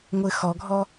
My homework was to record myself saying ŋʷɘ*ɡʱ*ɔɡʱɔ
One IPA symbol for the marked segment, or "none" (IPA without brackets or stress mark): x